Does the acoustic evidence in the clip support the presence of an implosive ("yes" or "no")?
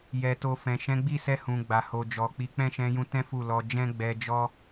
no